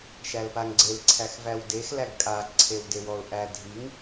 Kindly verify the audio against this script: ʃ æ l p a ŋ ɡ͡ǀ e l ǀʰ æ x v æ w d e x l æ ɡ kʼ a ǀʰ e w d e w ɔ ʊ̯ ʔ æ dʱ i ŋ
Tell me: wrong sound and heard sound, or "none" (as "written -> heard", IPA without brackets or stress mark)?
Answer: none